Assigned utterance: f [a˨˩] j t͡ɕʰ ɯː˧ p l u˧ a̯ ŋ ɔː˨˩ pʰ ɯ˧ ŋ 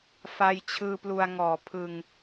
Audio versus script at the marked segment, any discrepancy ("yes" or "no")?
yes